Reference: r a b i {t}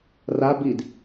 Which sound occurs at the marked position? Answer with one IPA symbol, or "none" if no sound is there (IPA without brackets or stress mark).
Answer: d